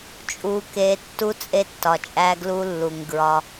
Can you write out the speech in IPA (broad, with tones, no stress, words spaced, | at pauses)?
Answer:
t͡ʃʼu˨ke˨˦ tːu˦ t͡sʼe˦tːɒ˨t͡ʃʼæ˦ ɡlu˦lːu˨ŋ ɡɹɒ˦